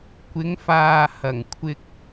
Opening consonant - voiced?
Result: no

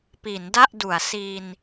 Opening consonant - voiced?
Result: no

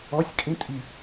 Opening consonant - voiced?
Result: no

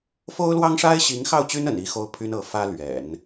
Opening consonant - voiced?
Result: no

